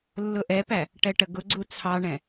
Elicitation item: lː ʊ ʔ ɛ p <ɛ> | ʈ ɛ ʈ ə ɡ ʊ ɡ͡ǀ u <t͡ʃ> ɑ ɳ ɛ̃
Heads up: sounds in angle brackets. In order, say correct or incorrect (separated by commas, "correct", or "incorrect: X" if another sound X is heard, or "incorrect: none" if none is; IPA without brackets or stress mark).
incorrect: æ, incorrect: t͡sʰ